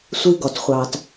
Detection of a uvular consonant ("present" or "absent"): present